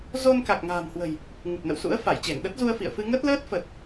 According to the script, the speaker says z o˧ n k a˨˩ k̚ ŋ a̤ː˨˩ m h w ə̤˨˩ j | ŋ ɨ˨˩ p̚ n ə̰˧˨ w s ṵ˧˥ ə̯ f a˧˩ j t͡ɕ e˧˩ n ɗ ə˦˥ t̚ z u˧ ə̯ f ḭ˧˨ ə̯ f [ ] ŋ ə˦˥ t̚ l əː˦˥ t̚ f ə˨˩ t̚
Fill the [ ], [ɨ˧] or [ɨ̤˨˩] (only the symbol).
ɨ˧